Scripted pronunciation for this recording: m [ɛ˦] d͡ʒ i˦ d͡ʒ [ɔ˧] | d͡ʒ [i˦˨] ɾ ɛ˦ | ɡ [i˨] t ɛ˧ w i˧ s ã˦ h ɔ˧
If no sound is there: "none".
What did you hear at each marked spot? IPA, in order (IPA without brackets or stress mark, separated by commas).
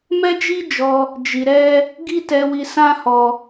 ɛ˦, ɔ˧, i˧, i˦